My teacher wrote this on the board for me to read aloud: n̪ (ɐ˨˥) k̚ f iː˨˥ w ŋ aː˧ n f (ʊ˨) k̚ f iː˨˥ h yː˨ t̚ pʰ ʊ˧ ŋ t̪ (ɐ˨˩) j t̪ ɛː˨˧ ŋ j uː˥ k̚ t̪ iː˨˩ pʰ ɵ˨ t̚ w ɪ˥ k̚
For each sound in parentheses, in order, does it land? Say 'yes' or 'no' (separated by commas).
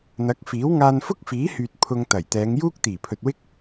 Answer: yes, no, yes